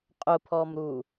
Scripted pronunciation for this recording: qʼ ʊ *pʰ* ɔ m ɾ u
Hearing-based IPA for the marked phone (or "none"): pʰ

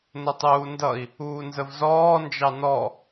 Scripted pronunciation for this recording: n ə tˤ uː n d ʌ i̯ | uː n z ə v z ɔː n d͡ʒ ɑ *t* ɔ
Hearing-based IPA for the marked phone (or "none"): n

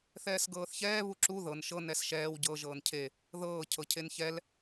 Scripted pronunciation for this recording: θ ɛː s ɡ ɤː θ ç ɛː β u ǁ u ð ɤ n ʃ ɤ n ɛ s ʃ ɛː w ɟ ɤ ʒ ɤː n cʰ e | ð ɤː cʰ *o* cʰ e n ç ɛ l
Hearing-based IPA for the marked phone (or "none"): ɤ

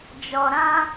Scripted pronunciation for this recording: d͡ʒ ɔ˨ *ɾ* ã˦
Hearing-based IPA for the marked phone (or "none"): ɾ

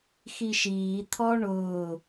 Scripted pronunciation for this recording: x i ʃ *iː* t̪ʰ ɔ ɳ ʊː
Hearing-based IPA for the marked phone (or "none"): iː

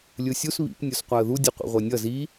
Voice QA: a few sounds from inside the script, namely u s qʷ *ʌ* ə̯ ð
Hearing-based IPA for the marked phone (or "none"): a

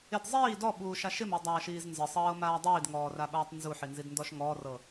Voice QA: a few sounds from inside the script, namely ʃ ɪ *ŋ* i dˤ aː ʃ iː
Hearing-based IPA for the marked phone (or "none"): m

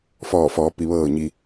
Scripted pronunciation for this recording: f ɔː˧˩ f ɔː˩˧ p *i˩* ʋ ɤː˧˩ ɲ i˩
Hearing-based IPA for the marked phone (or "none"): i˩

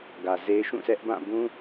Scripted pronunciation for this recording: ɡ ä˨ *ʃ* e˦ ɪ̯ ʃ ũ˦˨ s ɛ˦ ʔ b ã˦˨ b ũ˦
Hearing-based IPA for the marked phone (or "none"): z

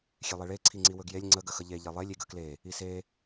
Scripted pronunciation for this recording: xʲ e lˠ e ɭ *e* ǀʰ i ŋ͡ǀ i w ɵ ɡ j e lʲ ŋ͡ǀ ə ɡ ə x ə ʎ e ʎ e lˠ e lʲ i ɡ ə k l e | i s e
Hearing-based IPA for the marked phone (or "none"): e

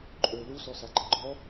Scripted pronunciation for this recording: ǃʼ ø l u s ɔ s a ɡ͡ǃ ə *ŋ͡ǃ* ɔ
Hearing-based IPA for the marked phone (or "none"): ɡ͡ǃ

